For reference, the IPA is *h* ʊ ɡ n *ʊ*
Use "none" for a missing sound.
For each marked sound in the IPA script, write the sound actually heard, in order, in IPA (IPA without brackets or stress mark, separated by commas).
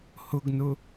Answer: h, ʊ